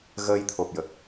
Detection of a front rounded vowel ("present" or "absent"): absent